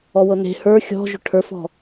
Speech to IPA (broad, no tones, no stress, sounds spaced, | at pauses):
ɔ w ɤ n e̤ h ə˞ xʲ ɔ̤ ʒ ʏ ʈʰ ə˞ f ɔ̤